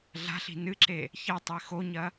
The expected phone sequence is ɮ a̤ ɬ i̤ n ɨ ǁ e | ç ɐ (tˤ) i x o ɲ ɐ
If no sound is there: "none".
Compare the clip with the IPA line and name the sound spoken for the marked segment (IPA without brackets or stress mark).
tˤ